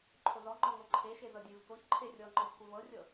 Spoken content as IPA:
ǃʰ o z ɔ ŋ͡ǃ ɔ ŋ o ǃʰ e ʃ e z ɤ dʲ e v k o ç ǃʰ e rʲ ɔ ŋ͡ǃ ɔ kʷʰ e v ɤ rʲ ɤ

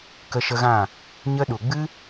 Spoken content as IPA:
k ə˧ ʃ ə˧ ɣ ã˦˨ | ɲ ə˧ ɗ u˨ ɡ͡b ɨ˦

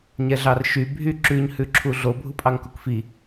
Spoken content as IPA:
ɲ ɛ ɮ ɑ r ʃ y bʱ y ǁ ʉ ɲ h ʉ ǁʰ u ɮ o bʱ u pʼ ɑ ŋ k u k f i

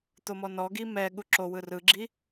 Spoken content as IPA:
t̪ o m ɔ n ɔ ɡ i m ɛ ɠ u ǁ o w ɯ r ɯ ɡ͡ǁ i

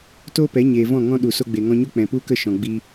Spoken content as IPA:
t oː˦ p ɛ˨˦ ɲ eː˨ v ɔ̃˦˨ ŋ ɔ̃˦ ɗ u˨ s o˧ ɡ͡b e˨ ŋ ɔ̃˧ ɲ o˦ k͡p ɛ̃˨ p u˦ k ə˦˨ ʃ ɔ̃˨ ɡ͡b i˧

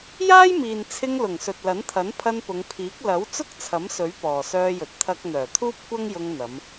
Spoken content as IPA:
j aː˥ j m iː˨ n t͡sʰ ɪ˧ ŋ l ʊ˨˩ ŋ s ɵ˨ t̚ l ɐ˨˥ n t̪ʰ ɐ˨˥ n pʰ ɐ˧ n p ʊ˨˧ ŋ pʰ iː˨˥ k̚ l ɐ˨˥ w t͡s ʊ˥ k̚ t͡sʰ ɐ˨˥ m s ɵ˨˥ ɥ p ɔː˨ s œː˧ j ɵ˨ t̚ t̪ʰ ɐ˧ k̚ n̪ œː˨˩ t̪ʰ uː˥ p̚ kʷ ɐ˥ ŋ j ʊ˧ ŋ n̪ ɐ˨˧ m

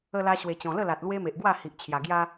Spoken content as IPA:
ə˧ l a˧ ɕ w e˨˩ t͡ɕ ɔ̃˨˩ l ə˥˧ l a˨ t̚ l w e˦ m e˨ ʔ ɡ w a˥˧ h i˨ ʔ t͡ɕʰ j a˨˩ ɡ j a˦

